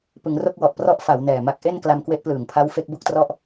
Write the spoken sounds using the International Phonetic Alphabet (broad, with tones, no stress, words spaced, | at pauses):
pɯ˩˦ŋro˥˩k̚wɔ˨˩ʔprɔ˦˥ʔ fa˩˦w nɛː˨˩ma˦˥k̚ ʔe˥˩nkla˧m kwe˦˥ʔplɯː˨˩ŋpʰa˦˥w fe˦˥k̚bu˥˩k̚trɔ˥˩ʔ